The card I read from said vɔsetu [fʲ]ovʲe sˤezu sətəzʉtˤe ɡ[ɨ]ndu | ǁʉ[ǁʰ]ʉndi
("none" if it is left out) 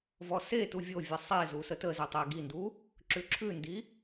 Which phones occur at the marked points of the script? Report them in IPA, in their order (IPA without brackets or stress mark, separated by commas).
vʲ, i, ǁʰ